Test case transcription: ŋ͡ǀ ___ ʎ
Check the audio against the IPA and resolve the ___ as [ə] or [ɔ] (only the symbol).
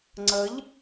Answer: ə